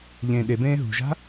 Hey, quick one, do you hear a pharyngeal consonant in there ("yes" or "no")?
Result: no